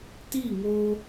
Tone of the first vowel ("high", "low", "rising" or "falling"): falling